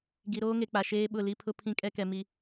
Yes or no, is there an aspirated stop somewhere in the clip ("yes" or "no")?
yes